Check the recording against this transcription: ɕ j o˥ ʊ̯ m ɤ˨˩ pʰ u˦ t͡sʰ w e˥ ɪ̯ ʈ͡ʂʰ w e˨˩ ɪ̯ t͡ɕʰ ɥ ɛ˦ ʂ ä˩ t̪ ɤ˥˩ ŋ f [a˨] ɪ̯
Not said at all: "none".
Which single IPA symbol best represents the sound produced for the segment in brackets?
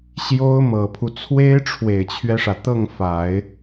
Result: a˨˩˦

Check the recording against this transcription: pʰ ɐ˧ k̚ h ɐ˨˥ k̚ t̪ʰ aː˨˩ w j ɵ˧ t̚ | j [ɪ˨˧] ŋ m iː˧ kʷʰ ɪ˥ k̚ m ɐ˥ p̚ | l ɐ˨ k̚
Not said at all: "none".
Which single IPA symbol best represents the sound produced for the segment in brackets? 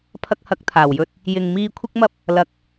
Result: ɪ˨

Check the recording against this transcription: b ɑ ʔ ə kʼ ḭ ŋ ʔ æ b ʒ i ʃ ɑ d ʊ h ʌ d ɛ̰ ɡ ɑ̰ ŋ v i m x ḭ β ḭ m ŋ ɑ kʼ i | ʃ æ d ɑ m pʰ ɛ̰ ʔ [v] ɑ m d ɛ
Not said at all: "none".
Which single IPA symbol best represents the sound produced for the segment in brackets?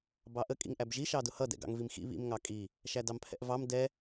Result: v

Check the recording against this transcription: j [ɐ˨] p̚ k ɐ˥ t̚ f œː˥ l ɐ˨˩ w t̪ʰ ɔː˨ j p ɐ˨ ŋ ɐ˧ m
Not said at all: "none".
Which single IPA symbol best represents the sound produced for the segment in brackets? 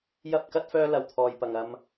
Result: ɐ˥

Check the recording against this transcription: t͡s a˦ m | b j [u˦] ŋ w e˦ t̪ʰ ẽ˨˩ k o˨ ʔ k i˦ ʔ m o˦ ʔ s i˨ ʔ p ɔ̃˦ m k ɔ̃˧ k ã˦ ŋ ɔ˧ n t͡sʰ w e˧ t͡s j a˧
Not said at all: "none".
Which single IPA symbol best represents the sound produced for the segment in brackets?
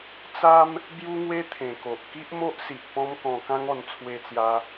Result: u˦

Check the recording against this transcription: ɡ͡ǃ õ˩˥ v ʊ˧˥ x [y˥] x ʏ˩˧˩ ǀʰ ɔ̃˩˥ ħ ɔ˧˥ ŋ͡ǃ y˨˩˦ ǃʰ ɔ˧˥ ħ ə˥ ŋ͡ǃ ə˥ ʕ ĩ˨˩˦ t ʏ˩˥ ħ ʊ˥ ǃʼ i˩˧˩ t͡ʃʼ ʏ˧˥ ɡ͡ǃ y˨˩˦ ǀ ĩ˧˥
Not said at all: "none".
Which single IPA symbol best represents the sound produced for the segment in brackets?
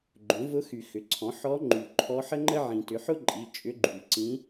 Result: y˨˩˦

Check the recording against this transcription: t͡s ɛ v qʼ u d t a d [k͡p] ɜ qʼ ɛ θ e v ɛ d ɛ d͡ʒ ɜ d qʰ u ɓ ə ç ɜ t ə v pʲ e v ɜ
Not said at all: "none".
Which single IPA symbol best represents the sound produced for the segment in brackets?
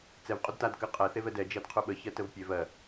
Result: k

